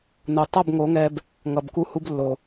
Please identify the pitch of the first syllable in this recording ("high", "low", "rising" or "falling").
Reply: low